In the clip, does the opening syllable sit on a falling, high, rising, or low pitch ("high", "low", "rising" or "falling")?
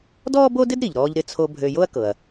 high